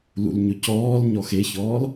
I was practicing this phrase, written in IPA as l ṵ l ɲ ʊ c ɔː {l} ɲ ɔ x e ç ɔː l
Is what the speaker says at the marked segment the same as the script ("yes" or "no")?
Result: yes